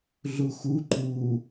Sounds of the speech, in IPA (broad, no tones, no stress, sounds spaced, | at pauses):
ɮ u x u ǃ u